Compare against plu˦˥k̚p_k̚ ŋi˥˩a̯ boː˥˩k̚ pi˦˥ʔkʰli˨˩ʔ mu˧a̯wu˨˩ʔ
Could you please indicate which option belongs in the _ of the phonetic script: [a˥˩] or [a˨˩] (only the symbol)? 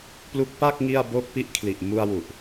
a˥˩